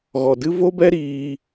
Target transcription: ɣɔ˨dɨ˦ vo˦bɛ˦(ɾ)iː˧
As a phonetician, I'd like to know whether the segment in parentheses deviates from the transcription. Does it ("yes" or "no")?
no